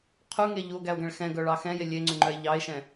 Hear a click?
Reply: yes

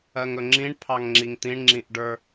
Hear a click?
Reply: yes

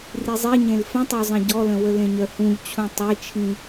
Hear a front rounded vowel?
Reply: yes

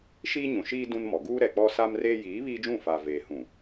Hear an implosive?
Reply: no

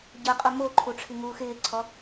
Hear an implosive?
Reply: no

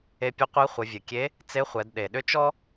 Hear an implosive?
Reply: yes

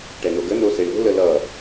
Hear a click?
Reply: no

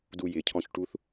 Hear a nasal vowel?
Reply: yes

